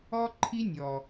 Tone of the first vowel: high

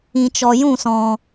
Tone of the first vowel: low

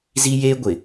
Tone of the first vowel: high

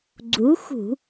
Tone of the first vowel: rising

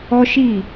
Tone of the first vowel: high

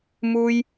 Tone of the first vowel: high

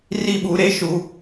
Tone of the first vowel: falling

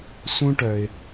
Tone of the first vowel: high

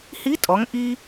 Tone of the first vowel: rising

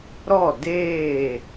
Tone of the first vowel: falling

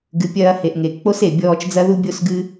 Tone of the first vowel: rising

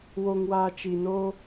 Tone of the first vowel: low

